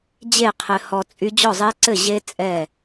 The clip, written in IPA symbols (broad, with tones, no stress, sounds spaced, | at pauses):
d͡ʑ e˥˨ qʰ ɘ˧ h ɔ˧ t͡sʼ y˦˥ d͡ʑ ɔ˥˨ zˤ ɛ˦˥ ǀ ɘ˥˨ ʑ e˦˥ t͡sʼ ɛ˥˨